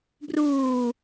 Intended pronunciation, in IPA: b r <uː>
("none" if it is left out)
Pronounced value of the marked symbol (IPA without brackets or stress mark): uː